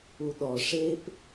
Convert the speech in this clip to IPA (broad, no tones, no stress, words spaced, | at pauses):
uɗɔ ʂep